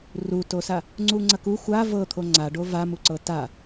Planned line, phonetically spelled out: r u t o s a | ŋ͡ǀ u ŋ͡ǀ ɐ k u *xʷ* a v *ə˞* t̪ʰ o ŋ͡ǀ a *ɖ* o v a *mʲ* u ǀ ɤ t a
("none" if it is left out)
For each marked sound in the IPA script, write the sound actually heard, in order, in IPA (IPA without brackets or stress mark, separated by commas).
xʷ, ɤ, ɖ, m